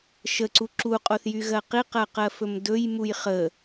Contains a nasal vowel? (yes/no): no